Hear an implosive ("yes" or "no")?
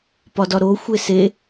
no